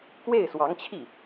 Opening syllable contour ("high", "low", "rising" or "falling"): falling